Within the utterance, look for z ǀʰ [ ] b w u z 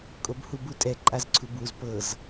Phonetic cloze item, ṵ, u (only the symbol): u